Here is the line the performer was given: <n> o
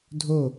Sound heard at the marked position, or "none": dʱ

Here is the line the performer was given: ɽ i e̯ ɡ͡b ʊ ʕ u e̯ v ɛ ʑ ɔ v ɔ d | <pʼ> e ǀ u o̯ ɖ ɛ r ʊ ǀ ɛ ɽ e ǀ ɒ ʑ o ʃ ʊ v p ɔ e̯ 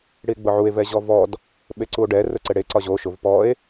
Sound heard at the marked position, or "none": ɓ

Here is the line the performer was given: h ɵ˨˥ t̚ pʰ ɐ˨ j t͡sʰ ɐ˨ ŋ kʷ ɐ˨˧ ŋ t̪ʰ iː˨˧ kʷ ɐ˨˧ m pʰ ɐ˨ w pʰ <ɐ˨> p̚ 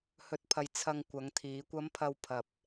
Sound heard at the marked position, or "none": ɐ˨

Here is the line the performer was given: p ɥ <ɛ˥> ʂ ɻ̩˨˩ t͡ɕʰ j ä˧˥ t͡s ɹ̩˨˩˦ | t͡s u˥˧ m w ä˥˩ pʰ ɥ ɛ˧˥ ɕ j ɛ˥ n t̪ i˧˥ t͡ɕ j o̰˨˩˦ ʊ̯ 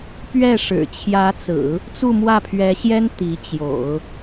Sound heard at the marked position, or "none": ɛ˥˩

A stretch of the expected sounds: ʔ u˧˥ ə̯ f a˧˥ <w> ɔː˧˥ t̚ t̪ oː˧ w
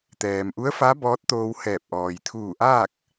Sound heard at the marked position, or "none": b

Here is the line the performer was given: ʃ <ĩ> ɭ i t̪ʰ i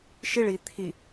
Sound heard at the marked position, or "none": i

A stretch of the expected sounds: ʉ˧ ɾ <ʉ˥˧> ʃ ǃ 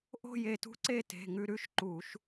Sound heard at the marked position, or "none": ʉ˥˧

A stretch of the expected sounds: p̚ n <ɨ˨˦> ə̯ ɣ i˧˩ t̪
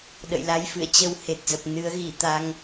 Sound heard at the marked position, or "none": ɨ˨˦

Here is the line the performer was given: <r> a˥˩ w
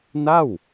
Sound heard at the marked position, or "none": n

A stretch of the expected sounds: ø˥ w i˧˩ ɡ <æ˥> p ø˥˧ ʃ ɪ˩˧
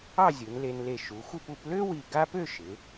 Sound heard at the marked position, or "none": a˥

